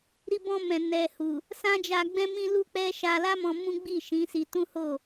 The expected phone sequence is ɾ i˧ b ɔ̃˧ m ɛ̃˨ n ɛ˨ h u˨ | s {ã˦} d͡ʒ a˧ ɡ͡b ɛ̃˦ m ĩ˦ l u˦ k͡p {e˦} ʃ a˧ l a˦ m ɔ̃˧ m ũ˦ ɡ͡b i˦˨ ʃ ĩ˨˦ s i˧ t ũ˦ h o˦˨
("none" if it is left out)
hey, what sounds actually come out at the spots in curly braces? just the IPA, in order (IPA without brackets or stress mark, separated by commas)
ã˦, ɛ˦